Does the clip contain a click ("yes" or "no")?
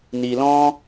no